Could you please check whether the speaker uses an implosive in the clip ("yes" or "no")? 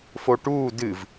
no